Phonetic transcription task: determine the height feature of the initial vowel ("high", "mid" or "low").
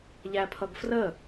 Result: low